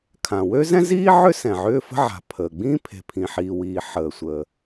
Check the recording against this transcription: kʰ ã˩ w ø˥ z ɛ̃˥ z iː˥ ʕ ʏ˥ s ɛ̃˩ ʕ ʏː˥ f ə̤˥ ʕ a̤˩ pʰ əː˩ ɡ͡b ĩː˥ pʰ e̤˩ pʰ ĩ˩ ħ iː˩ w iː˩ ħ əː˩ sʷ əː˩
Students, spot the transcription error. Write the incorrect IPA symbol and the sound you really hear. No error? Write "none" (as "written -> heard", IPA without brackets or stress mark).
none